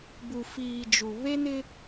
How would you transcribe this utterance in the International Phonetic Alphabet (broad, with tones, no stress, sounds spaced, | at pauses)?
b u˨ f iː˨ d͡ʒ u˨ β e˦ n ɪ˦